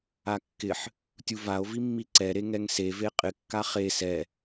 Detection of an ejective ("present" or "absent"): present